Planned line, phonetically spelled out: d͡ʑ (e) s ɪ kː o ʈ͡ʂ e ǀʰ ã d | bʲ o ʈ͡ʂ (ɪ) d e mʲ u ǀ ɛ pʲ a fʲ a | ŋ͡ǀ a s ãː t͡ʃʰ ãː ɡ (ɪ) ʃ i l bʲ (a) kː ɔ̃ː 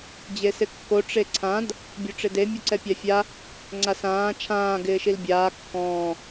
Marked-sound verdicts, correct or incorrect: correct, correct, incorrect: ɪː, incorrect: aː

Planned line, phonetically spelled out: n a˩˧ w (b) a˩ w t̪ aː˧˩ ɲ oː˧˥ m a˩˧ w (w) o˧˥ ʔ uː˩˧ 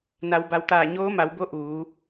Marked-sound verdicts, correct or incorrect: correct, incorrect: b

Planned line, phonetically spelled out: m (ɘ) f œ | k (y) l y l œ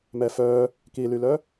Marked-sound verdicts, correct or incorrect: incorrect: ɛ, incorrect: i

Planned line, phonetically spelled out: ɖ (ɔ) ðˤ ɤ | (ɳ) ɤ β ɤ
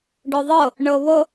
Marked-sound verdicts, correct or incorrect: correct, correct

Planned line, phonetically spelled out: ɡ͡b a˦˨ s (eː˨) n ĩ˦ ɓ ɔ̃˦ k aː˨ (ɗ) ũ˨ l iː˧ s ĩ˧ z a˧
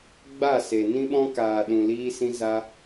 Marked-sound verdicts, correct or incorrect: incorrect: e˨, correct

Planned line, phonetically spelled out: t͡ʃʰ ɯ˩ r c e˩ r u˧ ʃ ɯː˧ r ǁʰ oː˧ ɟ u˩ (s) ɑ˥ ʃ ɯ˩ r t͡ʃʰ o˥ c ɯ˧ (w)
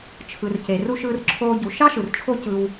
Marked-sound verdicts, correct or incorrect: incorrect: ʃ, correct

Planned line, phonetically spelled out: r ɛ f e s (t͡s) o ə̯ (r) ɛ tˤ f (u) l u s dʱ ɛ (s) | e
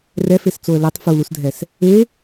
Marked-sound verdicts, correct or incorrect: correct, incorrect: l, correct, correct

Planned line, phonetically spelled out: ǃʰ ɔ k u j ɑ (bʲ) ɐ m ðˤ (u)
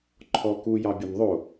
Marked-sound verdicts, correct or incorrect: correct, incorrect: o

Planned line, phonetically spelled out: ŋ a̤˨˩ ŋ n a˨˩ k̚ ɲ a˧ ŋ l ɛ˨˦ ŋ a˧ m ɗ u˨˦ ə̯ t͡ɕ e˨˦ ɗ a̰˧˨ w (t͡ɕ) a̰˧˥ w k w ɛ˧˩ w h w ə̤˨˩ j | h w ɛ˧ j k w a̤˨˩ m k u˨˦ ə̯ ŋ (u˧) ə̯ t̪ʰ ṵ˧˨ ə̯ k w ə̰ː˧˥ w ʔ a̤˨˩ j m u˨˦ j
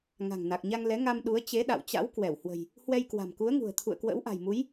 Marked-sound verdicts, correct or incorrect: correct, incorrect: ṳ˨˩

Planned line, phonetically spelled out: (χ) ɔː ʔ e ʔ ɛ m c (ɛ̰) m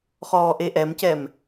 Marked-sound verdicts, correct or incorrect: correct, incorrect: ɛ

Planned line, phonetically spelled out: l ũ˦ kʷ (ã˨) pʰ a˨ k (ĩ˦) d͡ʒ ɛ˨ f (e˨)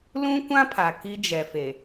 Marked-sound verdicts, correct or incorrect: incorrect: ã˦, incorrect: i˦, correct

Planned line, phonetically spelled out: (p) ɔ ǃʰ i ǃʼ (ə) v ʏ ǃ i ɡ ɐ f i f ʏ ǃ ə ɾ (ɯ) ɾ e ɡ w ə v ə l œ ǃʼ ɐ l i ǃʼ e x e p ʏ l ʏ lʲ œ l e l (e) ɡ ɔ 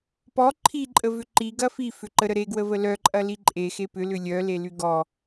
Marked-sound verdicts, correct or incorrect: correct, correct, incorrect: ə, incorrect: y

